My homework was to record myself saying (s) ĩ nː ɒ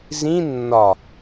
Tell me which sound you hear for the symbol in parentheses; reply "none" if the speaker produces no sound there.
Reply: z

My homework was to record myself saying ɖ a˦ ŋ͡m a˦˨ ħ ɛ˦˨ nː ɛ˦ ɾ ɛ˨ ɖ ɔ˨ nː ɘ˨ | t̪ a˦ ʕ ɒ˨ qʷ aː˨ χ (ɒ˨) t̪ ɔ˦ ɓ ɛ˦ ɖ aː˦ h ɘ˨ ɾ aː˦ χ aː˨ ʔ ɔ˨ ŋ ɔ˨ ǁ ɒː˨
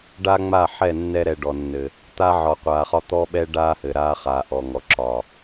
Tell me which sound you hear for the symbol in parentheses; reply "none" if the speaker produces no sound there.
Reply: ɒ˦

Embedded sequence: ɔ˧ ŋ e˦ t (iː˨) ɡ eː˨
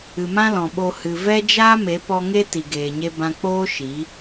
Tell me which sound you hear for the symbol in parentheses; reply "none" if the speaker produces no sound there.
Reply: i˨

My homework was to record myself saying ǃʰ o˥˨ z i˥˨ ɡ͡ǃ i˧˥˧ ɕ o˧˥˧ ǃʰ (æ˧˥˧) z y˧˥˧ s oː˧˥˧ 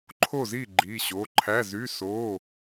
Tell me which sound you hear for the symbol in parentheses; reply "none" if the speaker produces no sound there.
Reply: æ˧˥˧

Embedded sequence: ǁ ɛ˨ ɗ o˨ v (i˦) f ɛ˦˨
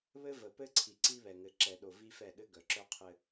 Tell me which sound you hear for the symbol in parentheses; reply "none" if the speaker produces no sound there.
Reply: i˦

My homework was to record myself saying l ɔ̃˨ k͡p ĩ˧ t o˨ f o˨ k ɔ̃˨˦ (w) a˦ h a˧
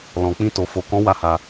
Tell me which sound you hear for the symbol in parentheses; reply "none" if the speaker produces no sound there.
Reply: w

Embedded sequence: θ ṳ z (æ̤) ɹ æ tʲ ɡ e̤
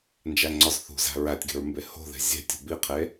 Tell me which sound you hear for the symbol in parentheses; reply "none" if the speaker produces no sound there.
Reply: æ̤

